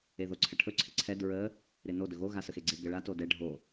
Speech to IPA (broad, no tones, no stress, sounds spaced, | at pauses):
e ð o ǀʰ ə ʈʰ ɵ ǀʰ ɪ ǀʰ ɛ d ɹ ə | ɾ ɪ n o d ɵ ɣ o ɣ a s ə x e ɡ͡ǀ e ɡ ə ɭ a t o d ɛ ɖʱ o